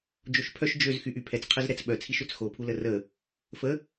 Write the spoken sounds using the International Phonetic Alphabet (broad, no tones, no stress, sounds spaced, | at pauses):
d͡ʒ o ʃ pʰ œ ʃ d͡ʒ ø z x y ʔ y pʰ ɛ t͡s qʰ ə z ɾ ɛ t͡s ɓ œ t͡sʰ i ʃ ø t͡s x o pʰ u l ə r ə | f ə